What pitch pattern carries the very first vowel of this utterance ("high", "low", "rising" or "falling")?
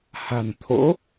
low